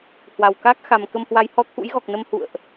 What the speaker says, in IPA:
h w a˨˩ w k aː˦˥ k̚ x a˨˩ m k ə˧ m h w a˨˦ j h ɔ˨˦ t̪ʰ ṵ˧˥ j ɣ ɔ˨˩ k̚ n ə˧ m h ṵ˧˨ ə̯ ʔ

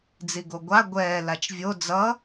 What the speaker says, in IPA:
d͡z i ɡ o ɡʷ a ɡʷ ɛː l a t͡ʃ vʲ o d͡z ʌ

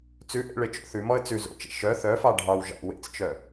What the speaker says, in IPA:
t͡s ʉ ʔ ḛ ɭ e t͡ʃ o̰ θ ʉ m ɔ ə̯ t͡s ʉ z o̰ t͡ʃ ḛ ʃ œ θ œ f ɑ ɖʱ ɑ w ʒ ɑ̰ w ḛ t͡s t͡ʃ œ

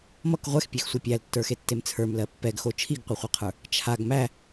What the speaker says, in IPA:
m ʌ k ʁʷ ɛ x pʲ e x sʷ ʌ pʲ æ l tː ə˞ x e tː e m t͡sʰ ə˞ m l ɜ pː ɛ ɡ x o t͡ʃʰ i ɡ qʷ ʌ χʷ ɛ qʰ ə˞ | t͡ʃʰ a ɡ m æ

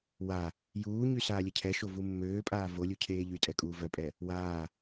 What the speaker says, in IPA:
w a | j uː ɲ y s aː lʲ ɛ cʰ ɛ ʃ o v u mː øː pʼ aː v o lʲ u cʰ eː ʎ y tʼ ɛ kʼ uː v œ pʼ ɛ | w aː

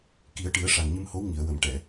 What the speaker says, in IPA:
k i˨˩˦ ə̯ ʈ ɨ˨˩˦ ə̯ ʂ a˨˩ ŋ ɲ ɨ˧ m h o˧˥ w ŋ i˨˩˨ ə̯ w ə˨˩˨ m ʈ ɛ˨˩˨

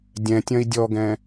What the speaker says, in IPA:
dʲ ɛ̃ tʲ ɐ̃ i̯ dʲ ɔ ɡ ɛ̃

